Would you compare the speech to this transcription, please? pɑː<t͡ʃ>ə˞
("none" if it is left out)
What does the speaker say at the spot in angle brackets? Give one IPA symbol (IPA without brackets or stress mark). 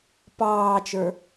t͡ʃ